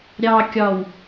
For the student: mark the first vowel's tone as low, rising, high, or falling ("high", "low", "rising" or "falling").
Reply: low